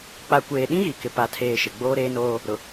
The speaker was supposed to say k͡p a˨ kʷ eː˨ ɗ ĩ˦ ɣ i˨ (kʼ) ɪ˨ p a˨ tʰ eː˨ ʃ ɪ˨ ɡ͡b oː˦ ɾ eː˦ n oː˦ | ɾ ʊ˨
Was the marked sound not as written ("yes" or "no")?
yes